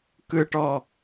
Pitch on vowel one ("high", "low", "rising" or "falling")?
high